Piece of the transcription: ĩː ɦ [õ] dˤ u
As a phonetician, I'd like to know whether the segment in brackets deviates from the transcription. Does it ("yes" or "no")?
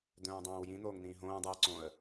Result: yes